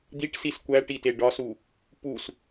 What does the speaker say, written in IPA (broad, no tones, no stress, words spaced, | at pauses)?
d̪iʈsis kʷæʈite ɖɒsu | pus